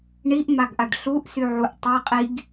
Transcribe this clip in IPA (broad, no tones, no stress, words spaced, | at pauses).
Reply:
ɳiʔmaɡʔaɖ ɬuʔsyʕuʔ tˤɛqʼiɡ